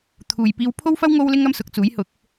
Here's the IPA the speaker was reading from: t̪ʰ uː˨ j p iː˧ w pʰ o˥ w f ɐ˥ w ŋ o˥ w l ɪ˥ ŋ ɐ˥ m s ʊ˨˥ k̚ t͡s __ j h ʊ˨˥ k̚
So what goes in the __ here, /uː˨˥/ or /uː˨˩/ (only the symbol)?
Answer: uː˨˥